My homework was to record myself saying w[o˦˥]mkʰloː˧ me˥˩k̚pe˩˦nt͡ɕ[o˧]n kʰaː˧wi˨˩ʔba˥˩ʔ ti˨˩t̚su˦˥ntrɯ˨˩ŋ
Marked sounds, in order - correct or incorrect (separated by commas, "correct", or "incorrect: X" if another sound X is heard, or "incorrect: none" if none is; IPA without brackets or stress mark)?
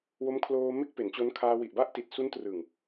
correct, incorrect: o˦˥